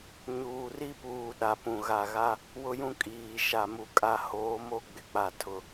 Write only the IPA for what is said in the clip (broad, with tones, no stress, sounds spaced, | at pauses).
ɲ uː˨ r i˦ p uː˨ ɗ a˨ p ũ˨ ɣ a˨ ɣ a˦ | w ʊ˦ j ũ˦ kʼ iː˨ ʃ a˨ m u˨ kʼ a˨ h oː˨˦ m o˦ ɡ͡b ɪ˨ k͡p a˨ tʰ ʊ˨